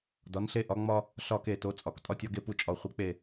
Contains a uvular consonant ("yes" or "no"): yes